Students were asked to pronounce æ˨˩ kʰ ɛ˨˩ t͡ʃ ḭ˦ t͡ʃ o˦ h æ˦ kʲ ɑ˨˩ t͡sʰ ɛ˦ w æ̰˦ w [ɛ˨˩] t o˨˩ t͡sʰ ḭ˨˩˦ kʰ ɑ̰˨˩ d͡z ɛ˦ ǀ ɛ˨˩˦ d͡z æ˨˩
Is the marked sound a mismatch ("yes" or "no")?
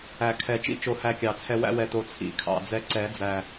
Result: no